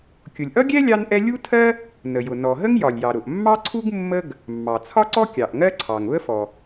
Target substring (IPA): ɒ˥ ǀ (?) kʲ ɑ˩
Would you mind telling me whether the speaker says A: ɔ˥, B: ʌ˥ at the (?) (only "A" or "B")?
A